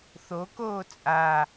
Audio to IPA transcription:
θokoː t͡sʼa

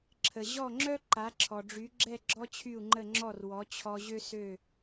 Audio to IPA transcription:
ǁʰə˩ʑɔ˥˩ŋ͡ǁœ˥ ǃa˩˥ǁʰɔ˩ɖ͡ʐy˩˥ɡ͡ǁɛ˥˩ ɡ͡ǁɔ˥t͡ɕʰy˥˩u̯ŋ͡ǃə˥˩ŋ͡ǁɔ˥˩r wɔ˩˥ t͡ɕʰɔ˧ʑø˥sø˥˩

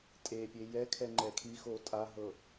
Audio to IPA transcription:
tʼepʲe jɛkʰɛ ŋ͡ǃɛkʰixo tʼaɦɤ

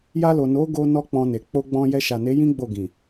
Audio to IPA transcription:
ja˧lo˨ no˨˦ɡo˧ nɔ˦k͡pɔ̃˧ne˨ k͡po˧ɡ͡bɔ̃˧ jɛ˧ʃa˨ne˨˦jĩ˦ ɡ͡bo˦˨ɡĩ˨

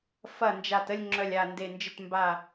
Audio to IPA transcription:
fɐ˨˩ nd͡ʒa˨˩tə˦˨lʲ ŋ͡ǁœ˨˩lʲa˨˩ nde˨˩nd͡ʒɪ˦˨tmba˦˨

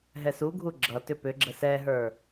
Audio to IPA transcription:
ɦɛsuɡʱu ɡ͡ǁʌtʏ pʏ ɡ͡ǁəsɛɦə˞

